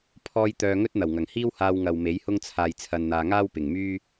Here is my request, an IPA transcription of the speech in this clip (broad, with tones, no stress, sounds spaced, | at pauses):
pʰ ɔː˧ j t̪ œː˧ ŋ ɵ˥ t̚ n̪ ɐ˨˩ w ŋ ɐ˨˩ ŋ h iː˥ w h aː˧ w ŋ ɐ˨ w m e˨˥ j h ʊ˥ ŋ t͡sʰ aː˧ j t͡sʰ ɐ˧ n n̪ aː˧ ŋ aː˥ w p ɪ˨ ŋ m yː˥